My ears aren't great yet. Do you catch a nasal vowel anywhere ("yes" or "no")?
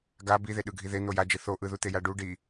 no